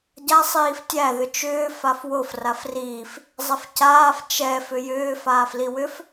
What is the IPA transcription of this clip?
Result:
ɟa sˤiːftʲæ ðʏt͡ʃʏː fafwof rafriːf | zˤɛfcaːf t͡ʃɛ fʏjʏːf aːfliwʏf

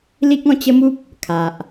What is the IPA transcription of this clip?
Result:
li˦k̚ɔ̃˧t͡ɕə˦mu˦p̚ | kʰa˨ʔ

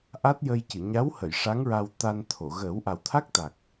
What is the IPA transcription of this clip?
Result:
ʔa˦˥t̚jə˧jcɨ˨˩˨ ɲa˧˥whə˨˩˨j ʂa˧˥ŋɹa˧w t̪a˧nt̪ʰo˨˩˨ ɣəː˨˩˦wʔa˨˩wt̪ʰa˦˥k̚t̪a˨˩k̚

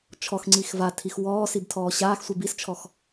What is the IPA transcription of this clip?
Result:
t͡ʃʰɔxŋ͡ǀix vatʰix wɔːsibtʰɔː ɕaːxsʷib ist͡ʃʰɔx

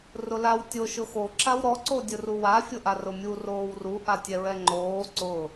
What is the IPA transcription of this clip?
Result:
rʊlaw tʲo ʃʊxo ǁawɾɔ ǀodʲʊruwa fʲʊʔarʊmʲu roːwru ʔatʲɛɹɛŋ͡ǃoː ǀʊ

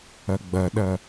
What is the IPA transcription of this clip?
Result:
ɐɡ͡bɐɗɐ

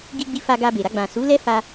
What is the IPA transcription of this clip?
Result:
ɡi˧ɡ͡bi˧ fa˧ɡa˧be˨ɾa˧ ɡ͡bã˨su˨˦lɛ˦ fa˧

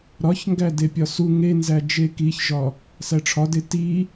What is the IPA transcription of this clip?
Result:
ɾɒçŋɡæ depʲɒsu ŋenzæ d͡ʒekiçʒɒ | sæʈ͡ʂʰɒde ti

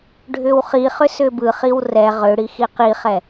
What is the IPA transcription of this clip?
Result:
ɖʱʏwχiχʏ sʏbɯχiw rɛ ʁʏɽi xiqiχɛ

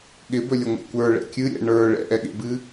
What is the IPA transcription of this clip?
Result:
ɠɪbɵlʲəŋʷɛ̰ kʷə˞ɭɛ̰ kʲɨɾʲɛ̰ ɳə˞ ɭɛ̰ʔɛɠḛbɨ

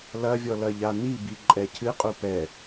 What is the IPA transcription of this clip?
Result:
lɐvʲɔ lɐʎan̪ibi ǃʼɛcʰɨqʼu pɛ

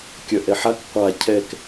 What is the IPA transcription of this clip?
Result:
kʲœʔɛħak qʷa cʰɛk

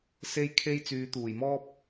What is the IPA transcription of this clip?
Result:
se˥jkʰe˥j t͡syː˨˧t̪uː˨˩jmɔː˥p̚

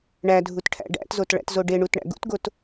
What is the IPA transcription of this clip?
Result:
ɳædʱut ʈʰæ̰ɖæ̰tzot ɭæ̰tzoɖeɳut ɳæ̰ɡṵtɡot

